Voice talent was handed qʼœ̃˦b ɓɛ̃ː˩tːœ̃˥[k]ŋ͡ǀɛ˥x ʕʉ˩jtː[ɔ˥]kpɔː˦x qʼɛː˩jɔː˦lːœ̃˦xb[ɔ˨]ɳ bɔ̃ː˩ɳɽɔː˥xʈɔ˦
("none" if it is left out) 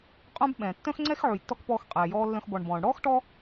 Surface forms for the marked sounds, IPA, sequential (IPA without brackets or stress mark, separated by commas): x, ɔ˥, ɔ˨